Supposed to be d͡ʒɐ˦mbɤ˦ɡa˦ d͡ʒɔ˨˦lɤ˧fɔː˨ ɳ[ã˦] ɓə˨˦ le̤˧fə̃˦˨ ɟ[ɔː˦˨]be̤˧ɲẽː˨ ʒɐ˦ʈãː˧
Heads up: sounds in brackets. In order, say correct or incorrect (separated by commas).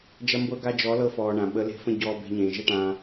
incorrect, incorrect